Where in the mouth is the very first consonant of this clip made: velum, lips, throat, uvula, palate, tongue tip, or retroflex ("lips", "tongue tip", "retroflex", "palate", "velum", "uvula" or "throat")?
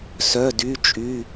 tongue tip